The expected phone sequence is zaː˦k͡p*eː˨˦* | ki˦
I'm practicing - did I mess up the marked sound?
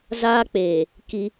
yes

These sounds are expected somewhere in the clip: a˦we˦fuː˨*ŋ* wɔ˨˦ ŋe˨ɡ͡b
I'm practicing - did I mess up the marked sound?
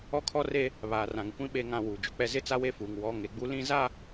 no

